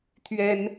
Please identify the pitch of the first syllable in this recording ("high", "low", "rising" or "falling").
high